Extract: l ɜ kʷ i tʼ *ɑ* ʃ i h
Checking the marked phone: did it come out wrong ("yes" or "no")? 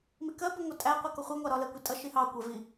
yes